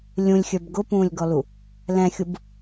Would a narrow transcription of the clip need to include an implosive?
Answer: no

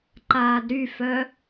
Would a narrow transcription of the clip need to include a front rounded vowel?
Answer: yes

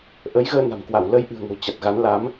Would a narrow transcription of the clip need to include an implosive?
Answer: no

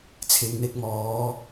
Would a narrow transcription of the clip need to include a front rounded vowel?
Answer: no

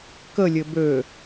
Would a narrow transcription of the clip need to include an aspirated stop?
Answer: no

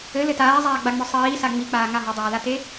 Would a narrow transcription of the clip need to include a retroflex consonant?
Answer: no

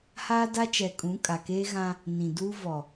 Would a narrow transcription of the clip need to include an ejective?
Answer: yes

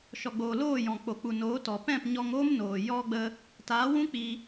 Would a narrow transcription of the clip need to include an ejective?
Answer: no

